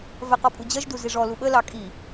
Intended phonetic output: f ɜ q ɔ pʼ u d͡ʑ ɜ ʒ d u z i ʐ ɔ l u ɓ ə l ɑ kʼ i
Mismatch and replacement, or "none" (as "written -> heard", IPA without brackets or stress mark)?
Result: f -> v